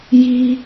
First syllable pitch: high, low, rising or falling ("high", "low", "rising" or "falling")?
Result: high